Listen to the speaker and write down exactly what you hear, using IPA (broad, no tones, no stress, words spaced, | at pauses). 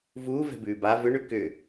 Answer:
vuːvɛ̤bʉː ba vʏɳʉ kʏ